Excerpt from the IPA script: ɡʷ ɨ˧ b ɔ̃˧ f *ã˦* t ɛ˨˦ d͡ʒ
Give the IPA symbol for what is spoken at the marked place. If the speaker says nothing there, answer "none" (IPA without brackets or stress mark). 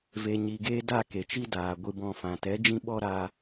ã˨